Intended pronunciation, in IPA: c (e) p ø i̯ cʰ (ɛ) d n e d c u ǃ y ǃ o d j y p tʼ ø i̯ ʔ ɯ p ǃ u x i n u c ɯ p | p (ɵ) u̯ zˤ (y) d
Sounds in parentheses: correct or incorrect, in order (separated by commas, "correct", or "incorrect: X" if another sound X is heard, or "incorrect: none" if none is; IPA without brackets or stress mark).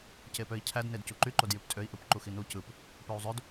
correct, incorrect: æ, incorrect: ø, incorrect: ø